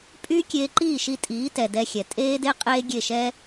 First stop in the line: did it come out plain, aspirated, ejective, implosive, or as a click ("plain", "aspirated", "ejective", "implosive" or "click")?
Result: ejective